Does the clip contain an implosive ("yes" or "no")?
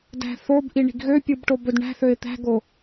no